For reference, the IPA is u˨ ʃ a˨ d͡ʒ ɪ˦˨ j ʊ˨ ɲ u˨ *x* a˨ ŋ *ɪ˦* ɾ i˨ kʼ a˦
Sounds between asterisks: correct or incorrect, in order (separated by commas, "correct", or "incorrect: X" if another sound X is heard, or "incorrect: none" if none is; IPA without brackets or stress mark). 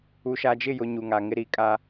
incorrect: ŋ, correct